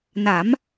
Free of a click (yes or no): yes